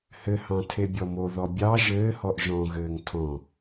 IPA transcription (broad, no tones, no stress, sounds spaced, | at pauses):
h ɘ h ɑ̃ tʰ e bʲ ɔ m o ð ɔ bʲ ɑ ʒ ɘː h ɔ ʔ ʒ ɔ̃ ɣ ɘː ŋ tʰ ɔ̃